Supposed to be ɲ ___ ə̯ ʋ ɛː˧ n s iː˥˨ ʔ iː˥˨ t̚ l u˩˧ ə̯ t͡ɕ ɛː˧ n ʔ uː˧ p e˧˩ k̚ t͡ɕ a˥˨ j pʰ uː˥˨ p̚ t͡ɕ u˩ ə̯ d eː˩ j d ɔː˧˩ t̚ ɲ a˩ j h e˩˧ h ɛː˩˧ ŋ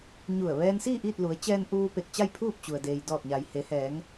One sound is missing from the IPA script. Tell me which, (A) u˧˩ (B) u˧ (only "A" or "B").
A